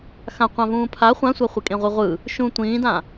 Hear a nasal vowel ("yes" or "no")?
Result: yes